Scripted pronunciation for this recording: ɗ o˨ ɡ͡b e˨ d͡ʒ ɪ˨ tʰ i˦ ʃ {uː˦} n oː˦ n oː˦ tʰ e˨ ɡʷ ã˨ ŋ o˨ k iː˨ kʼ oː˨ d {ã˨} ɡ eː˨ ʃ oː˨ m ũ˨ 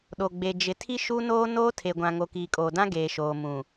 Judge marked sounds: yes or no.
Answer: no, no

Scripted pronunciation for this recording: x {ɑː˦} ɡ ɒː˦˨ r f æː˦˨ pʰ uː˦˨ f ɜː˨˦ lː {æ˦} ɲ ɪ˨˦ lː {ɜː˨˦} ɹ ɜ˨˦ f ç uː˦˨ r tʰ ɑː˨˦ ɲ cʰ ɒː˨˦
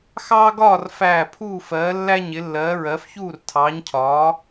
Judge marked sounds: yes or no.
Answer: yes, yes, yes

